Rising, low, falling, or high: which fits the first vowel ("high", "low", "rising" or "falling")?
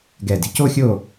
low